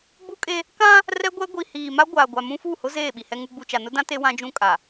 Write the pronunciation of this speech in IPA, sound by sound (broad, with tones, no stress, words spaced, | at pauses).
ɡ͡bu˦kʼe˦ | kã˦ | rɛ˦ɡʷɛ˦ɡʷi˨hiː˨ ma˦ɡʷaː˨ɡʷa˨ mũ˦fu˦˨hʊ˦ zeː˦˨ɓi˨ hɛ˦ŋu˦ ɡ͡bu˨t͡ʃa˨nʊ˦dã˦ te˦wã˦d͡ʒũ˦kʼa˨